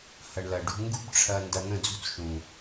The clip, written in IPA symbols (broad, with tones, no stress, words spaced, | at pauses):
hɐ˨ɳlɐ˨ɖṳ˧ ŋɡṳ˦bʈ͡ʂʰɐ˧ ndɐ˧n̪ə̃˦˨d͡zṳ˦t͡s ʃũ˨